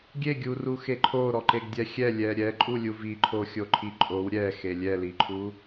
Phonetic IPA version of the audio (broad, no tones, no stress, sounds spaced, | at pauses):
ɡʲ e ɡʲ u r u x e ǃʰ o ɾ ɔ ǃ e ɡ dʲ ɛ xʲ ɛ lʲ ɛ ɾʲ ɛ ǃʼ u lʲ u v i ǃʰ o xʲ o ǃʰ i ǃʼ o w ɾʲ ɛ x e lʲ ɛ l i ǃʰ u